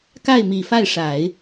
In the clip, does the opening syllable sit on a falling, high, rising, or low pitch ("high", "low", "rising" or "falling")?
falling